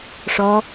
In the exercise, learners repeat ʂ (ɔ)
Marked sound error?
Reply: no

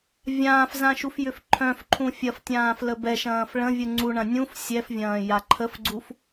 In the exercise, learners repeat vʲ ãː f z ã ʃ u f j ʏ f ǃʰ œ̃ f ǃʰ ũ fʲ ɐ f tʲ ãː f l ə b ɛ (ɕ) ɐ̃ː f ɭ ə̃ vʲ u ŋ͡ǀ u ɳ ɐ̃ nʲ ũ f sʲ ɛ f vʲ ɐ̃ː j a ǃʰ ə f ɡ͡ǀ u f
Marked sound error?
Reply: yes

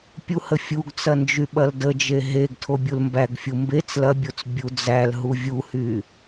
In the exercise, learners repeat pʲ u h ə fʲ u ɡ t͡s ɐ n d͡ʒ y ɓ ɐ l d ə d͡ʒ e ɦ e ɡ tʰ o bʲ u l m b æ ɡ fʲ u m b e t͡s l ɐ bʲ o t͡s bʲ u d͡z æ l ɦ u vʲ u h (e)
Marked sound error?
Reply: yes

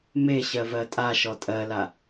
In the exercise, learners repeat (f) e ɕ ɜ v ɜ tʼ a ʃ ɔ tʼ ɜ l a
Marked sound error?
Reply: yes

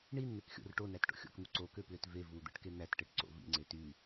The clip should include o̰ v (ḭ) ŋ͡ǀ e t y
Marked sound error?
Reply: no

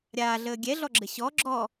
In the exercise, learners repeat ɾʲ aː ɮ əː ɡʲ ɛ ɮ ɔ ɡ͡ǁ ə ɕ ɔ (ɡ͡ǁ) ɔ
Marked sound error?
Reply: no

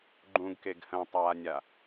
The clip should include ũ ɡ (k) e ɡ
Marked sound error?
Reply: no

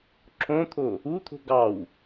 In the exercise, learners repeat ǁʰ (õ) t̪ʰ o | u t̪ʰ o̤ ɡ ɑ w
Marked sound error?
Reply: no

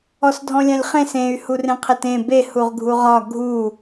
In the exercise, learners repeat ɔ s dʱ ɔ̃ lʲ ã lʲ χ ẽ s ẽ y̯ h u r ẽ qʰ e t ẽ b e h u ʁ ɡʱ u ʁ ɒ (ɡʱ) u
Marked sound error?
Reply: no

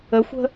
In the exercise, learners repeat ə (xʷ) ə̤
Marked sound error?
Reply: no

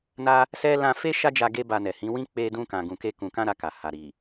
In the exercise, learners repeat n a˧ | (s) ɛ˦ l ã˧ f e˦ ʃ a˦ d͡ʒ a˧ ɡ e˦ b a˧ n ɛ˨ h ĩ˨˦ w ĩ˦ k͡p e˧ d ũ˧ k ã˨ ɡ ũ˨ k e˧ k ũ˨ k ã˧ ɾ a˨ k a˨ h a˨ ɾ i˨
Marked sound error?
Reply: no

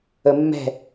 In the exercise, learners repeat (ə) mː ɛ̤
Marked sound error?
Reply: no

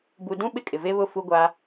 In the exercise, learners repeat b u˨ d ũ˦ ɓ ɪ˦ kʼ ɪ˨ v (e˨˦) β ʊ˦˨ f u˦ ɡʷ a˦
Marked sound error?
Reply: yes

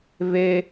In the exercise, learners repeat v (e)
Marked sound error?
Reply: no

